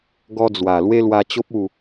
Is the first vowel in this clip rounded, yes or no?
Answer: yes